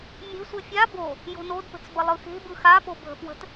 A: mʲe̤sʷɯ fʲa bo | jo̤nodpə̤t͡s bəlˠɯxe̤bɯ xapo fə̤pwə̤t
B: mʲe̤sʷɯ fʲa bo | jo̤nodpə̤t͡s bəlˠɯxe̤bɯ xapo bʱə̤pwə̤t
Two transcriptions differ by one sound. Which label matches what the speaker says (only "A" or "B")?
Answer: B